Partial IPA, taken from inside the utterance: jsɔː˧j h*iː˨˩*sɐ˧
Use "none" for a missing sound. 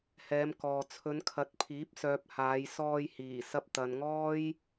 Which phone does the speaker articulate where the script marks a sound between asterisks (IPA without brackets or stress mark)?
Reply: iː˨˩